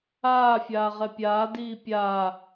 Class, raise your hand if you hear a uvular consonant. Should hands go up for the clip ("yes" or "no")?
yes